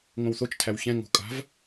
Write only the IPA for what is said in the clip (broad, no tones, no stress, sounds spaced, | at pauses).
ŋ õ w θ o t͡ʃ tʰ æ w ç ɛ̃ ŋ o̤ kʼ a̤ v